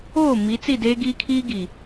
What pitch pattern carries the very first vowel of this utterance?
falling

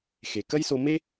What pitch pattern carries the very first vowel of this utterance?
low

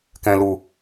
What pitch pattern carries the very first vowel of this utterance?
low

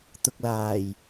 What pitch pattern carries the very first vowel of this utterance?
low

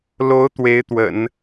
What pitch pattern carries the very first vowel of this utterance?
rising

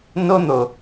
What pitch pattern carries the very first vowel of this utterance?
high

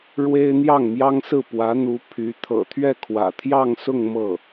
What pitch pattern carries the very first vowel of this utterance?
high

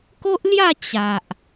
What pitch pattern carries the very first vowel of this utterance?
high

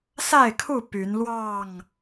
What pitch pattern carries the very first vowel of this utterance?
falling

